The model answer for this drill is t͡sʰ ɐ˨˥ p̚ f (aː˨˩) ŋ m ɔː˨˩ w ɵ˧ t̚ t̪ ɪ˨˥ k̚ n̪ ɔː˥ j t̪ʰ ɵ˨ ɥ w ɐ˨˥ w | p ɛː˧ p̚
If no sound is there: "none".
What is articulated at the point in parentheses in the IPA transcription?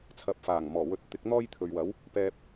aː˨˩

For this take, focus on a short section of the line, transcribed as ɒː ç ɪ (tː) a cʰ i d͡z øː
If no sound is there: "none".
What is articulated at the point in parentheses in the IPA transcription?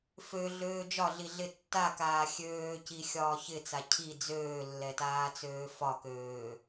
t͡s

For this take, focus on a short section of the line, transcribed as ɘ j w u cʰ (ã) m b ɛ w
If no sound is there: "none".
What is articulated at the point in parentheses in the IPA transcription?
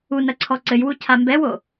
a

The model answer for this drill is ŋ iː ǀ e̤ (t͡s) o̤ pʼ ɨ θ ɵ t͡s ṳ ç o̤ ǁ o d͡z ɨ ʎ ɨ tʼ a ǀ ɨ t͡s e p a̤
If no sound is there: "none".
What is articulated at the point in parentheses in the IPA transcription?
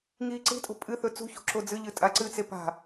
tʼ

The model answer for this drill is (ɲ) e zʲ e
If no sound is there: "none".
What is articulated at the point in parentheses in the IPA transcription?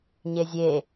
ɲ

